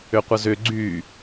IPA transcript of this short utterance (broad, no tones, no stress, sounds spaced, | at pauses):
ʏ qʷ ə z ʏ ɡ͡ǀ y